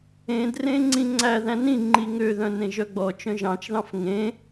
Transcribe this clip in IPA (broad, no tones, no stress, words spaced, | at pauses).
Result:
ẽdrẽŋ͡ǀĩ ŋ͡ǀæ ðæ̃nĩ ŋ͡ǃiŋø ðœ̃nẽʒœɡ͡bɔ t͡ʃœ̃ʒɑ̃t͡ʃðɑ̃f ŋẽ